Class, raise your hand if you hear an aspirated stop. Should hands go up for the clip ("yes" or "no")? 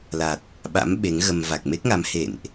no